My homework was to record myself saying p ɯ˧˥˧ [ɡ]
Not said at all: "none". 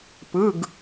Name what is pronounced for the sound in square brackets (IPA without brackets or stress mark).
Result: ɡ